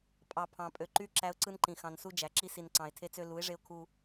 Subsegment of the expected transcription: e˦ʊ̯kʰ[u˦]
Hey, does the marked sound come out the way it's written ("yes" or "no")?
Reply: yes